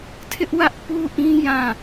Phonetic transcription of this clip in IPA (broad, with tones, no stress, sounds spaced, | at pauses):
tʰ ɪ˦ ʔ w ä˦ ʔ p u˦ ʔ ĩ˦ j ã˦˨